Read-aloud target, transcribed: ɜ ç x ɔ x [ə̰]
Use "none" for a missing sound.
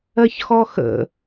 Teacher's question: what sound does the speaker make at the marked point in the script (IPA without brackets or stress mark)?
ə̰